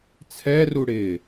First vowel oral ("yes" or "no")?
yes